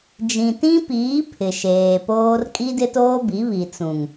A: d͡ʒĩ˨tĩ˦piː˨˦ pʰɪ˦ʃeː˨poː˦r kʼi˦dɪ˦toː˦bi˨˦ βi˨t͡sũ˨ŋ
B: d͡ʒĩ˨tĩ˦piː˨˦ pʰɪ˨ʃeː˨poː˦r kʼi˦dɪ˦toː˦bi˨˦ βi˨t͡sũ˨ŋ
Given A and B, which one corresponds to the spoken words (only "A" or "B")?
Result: B